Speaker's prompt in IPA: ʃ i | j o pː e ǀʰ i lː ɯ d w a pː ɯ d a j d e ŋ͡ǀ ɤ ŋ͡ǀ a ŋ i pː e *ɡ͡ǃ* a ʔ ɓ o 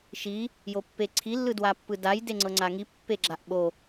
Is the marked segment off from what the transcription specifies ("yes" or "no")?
yes